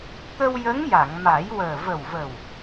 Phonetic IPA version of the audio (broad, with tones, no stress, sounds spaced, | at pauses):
t̪ ə˧ w j ə˧˥ ŋ j a˨˩˨ ŋ m a˨˩˦ j w əː˨˩ v ə˨˩ w v ə˨˩ w